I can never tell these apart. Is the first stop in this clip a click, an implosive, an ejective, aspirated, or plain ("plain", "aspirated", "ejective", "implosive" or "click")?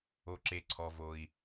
click